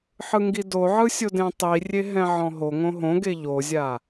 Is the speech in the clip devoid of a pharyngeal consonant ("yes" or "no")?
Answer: no